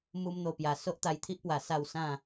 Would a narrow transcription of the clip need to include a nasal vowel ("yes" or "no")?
yes